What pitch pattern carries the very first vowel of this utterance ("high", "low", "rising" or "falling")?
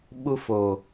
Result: high